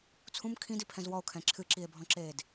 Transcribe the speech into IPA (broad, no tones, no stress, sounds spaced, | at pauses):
t͡sʰ ũ m kʰ ĩ d i pʰ ɛ̃ z w ɔ o̯ kʰ ɛ̃ ǁʰ ɨ ǁ i e̯ bʱ ɔ̃ ǁ eː d